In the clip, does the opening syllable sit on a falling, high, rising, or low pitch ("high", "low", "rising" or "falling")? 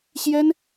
high